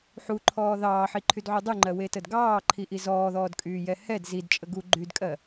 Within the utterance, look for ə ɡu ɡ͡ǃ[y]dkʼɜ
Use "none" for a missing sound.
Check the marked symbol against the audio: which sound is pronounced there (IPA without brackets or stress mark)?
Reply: y